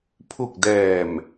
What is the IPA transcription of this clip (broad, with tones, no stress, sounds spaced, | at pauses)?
pʰ u˨˩ k̚ d ɛː˨˩ m